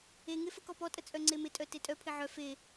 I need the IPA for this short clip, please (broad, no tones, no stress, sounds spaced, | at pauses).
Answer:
e ŋ e f ə k ɔ p ɔ tʼ ə t͡sʼ œ ŋ͡ǀ e m ɪ tʼ œ t e tʼ œ pʰ ɪ ʕ œ f e